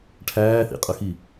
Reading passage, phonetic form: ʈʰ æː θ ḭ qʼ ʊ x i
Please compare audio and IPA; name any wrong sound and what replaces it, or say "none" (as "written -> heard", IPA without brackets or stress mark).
none